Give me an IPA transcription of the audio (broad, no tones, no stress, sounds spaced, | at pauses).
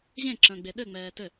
ʑ ẽ ǁ ə̃ː ɡ͡b e ɗ ɘ ŋ͡m ɛː t ɘ